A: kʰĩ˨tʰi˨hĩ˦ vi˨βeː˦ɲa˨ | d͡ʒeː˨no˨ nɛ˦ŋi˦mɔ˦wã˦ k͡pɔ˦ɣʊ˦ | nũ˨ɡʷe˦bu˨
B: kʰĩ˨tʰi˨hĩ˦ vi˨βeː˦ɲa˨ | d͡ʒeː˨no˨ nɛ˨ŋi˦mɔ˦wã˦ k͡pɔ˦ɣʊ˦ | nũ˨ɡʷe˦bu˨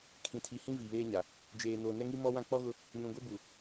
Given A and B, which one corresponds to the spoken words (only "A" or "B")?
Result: A